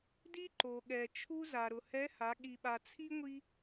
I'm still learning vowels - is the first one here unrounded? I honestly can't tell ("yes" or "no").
yes